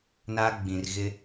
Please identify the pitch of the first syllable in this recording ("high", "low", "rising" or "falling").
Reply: high